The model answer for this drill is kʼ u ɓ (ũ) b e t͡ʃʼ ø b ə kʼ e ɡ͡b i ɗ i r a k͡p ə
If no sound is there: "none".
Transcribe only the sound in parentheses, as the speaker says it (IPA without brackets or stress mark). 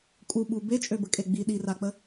u